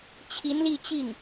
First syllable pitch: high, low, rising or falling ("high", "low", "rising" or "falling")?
rising